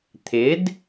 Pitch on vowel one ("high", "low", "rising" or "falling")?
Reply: rising